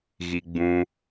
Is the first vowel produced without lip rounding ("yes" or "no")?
yes